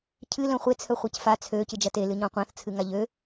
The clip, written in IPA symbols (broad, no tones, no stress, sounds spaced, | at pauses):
cʰ ɨ l œ̃ χʷ e t͡sʰ œ χʷ e c f a t͡sʰ ø c ɨ d͡ʒ ɐ t e l ɨ ɲ ɔ̃ qʷ ã θ t͡sʰ ɨ ŋ a ʎ ø